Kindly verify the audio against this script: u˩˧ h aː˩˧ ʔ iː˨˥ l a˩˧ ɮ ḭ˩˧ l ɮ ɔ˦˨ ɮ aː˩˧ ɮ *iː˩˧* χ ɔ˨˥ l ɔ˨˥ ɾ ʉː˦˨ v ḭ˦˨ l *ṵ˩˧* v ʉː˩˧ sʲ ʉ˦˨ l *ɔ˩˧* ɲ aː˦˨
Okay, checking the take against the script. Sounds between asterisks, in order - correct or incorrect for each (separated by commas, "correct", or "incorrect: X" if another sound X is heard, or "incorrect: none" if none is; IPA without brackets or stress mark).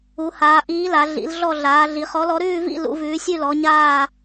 incorrect: i˩˧, correct, correct